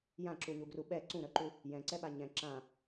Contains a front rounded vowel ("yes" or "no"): yes